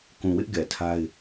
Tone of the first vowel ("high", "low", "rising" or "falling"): low